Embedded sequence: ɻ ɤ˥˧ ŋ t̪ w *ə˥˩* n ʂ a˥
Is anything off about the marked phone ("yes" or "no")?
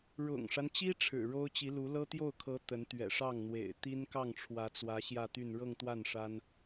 yes